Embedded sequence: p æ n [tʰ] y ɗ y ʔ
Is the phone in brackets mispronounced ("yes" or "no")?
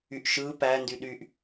yes